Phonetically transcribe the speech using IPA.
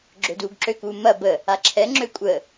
ɡ͡ǁøduːɡǁøkuː mɐ bə | aǁʰɛŋ͡ǁø kʷʼə

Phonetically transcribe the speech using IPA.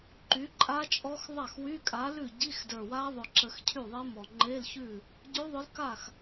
ǃy˨˥ǃʼa˦˥t͡ʃʼɔ˦˥x ðˤa˥˩xwy˧˥˧kʼa˨˥lʉ˥˩ ɟi˧˥˧x də˞˨˩wa˦˥ðˤʊ˨˩ ǁə˧xcʰy˥˩ðˤe˦˥mɔ˨˩ ŋ͡ǃe˧˥˧lçʉ˥˩ | ɟʉ˦˥ðˤʊ˦˥l ka˥˩x

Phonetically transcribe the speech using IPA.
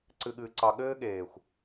ǀɨ˨ɠɨː˨ǀɑ˨ ɠɘː˦ɠeː˨xʷ

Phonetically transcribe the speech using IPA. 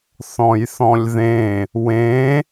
θɔ̃jθɔ̃lʲðẽ | wẽ

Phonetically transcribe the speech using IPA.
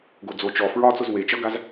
ɡod͡zo t͡ʃɔ fɹɒ t͡sʊzwet͡ʃʌɡaz

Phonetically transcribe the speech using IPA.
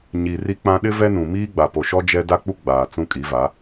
ɲi˨ ri˦k͡pã˦ ɗɪ˦vɛ˦nũ˨ miː˦ɡ͡ba˨po˨ʃɔ˦ d͡ʒɛ˦ da˦k͡pu˦ ɡ͡baː˨ t͡sũ˦kʼi˨˦va˨˦

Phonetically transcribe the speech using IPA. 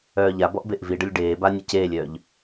œːʎabɔʔ beʔviɖəlʲ ɖeːba nʲəceːlʲœːʎ

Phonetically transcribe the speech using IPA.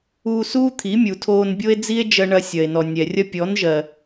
uː˧suː˦ t̪ʰi˨˦mʲu˨tʰoː˧n bʲo˦e̯d͡zi˦e̯d͡ʒɜ˧ ɳɐ˧sʲɐ˨e̯nɔ˨ nʲɛ˨rʲɐ˦ pʲɔ˨˦nʒɜ˨

